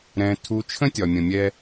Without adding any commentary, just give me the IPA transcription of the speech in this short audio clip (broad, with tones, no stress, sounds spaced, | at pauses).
ɾ ɛ̃˨ tʰ u˨˦ t͡ʃʰ ə̃˦ tʲ ɒ˨ mʲ ə̃˨ mʲ ɛ˧